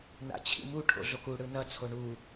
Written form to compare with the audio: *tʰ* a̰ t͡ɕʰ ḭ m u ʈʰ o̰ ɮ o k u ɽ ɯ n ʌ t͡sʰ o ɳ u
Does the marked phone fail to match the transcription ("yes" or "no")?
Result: yes